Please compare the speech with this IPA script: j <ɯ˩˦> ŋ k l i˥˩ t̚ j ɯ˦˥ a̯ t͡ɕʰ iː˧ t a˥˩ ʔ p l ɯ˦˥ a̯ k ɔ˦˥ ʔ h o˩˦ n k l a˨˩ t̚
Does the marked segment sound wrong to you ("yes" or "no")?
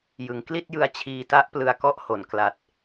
no